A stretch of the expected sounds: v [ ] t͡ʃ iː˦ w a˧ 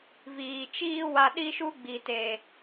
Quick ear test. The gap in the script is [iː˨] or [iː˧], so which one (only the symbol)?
iː˨